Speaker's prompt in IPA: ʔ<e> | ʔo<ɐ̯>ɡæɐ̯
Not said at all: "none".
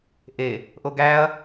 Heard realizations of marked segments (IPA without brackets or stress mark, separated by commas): e, none